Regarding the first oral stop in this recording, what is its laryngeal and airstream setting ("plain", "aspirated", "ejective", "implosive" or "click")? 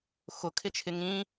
aspirated